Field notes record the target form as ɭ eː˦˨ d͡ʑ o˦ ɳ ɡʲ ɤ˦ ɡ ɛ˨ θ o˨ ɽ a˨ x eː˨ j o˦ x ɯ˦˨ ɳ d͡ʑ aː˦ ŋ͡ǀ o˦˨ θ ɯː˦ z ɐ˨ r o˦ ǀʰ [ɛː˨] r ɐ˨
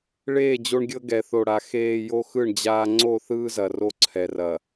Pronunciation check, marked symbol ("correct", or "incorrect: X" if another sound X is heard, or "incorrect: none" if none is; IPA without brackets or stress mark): incorrect: ɛ˨